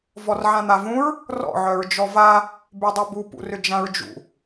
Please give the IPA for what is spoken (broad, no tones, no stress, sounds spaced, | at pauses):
v ɔ r ʕ ã n̪ a v ũ ɹ | r ɔ̰ ʕ œ ɹ d͡ʒ ɔ v a | b y dˤ œ b u p ṵ r ʏ d͡ʒ ã ɹ d͡ʒ ṵ